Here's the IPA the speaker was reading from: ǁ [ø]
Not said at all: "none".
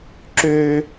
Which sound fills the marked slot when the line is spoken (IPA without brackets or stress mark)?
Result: ø